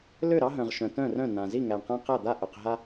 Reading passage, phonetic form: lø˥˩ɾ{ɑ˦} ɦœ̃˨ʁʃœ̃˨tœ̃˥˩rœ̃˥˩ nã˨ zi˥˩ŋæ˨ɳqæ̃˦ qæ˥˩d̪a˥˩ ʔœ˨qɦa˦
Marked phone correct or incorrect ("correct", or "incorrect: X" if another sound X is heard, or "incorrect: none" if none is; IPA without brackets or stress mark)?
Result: correct